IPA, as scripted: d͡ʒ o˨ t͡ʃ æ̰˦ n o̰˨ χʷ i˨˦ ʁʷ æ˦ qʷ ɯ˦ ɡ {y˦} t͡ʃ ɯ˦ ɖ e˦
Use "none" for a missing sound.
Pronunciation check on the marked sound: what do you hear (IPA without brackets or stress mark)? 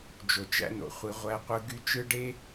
y˦